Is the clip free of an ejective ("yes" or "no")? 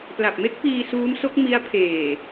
yes